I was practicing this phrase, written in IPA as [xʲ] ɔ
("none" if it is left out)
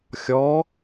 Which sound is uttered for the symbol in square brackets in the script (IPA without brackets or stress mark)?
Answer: xʲ